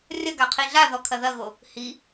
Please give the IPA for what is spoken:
rʲ ɐ ɡ a qʰ i ɮ a ð ɔ kʰ ɐ ð ɐ ɣ o | h i

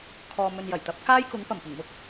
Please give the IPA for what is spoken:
kʰ ɔː˨ m ɵ˨ n j ɐ˨˩ j t̪ ɐ˨˥ p̚ k aː˥ j k ʊ˨˥ ŋ p ɐ˨˩ m p ʊ˨˩ ŋ m ʊ˥ k̚

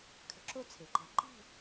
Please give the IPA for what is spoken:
kʰ ə̤˨˥ ǁ o˥˨ t͡sʰ e˩ ǃ ɛ̤˨˩˦ ǃ i̤˥˨

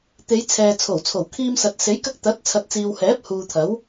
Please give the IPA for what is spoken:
t̪ e˨˧ j t͡sʰ ɛː˨ t͡sʰ o˨˩ w t͡sʰ o˨˩ w kʰ iː˧ m s ɐ˨ t̚ s e˨˥ j k ɐ˧ k̚ t̪ ɐ˨˥ t̚ t͡sʰ ɐ˨ t̚ t͡s iː˨ w h ɛː˨˥ p̚ h uː˨ t̪ʰ ɐ˨˥ w

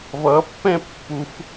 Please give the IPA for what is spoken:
v ʌ pː ɛ̃ pː u f

